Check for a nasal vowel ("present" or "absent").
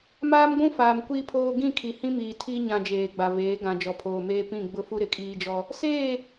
present